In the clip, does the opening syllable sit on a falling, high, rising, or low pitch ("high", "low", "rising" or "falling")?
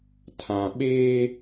low